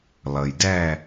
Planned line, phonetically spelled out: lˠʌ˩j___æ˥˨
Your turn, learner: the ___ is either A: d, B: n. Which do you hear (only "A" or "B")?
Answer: A